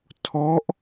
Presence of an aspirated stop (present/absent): present